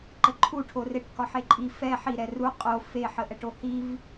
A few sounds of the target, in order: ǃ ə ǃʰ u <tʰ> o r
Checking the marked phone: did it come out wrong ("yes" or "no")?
yes